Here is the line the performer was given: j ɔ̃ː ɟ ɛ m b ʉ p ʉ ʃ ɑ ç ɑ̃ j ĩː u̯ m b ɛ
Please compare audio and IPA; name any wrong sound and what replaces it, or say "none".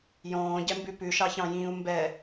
none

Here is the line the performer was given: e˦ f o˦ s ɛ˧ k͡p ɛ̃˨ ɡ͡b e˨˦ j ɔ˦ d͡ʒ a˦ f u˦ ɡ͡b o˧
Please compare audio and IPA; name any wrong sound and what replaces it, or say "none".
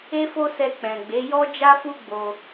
none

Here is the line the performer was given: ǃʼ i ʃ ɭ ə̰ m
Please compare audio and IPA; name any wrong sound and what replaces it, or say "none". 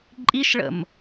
none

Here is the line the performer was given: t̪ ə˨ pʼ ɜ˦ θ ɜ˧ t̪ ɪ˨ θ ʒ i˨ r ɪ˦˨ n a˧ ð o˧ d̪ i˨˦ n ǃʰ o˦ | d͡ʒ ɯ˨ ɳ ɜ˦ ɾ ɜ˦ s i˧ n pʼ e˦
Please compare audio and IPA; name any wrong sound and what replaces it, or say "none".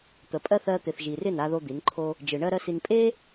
none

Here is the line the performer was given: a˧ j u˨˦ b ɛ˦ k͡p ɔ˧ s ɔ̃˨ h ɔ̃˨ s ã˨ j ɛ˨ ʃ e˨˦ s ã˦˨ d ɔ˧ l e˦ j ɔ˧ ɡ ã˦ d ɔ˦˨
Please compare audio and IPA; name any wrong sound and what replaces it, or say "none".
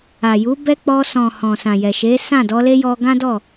a˧ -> a˨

